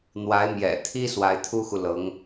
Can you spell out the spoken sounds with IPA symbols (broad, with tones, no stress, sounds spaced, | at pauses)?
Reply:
n̪ w a˧˥ ɪ̯ m j ɛ̰˨˩ t̪ʰ i˥ s w a˧˥ ɪ̯ t̪ʰ u˥ x u˨ l ɤ˧˥ ŋ